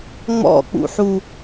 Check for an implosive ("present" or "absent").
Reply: absent